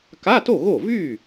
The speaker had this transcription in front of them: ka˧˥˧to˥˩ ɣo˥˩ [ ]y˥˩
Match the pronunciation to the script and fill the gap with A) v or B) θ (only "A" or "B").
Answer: A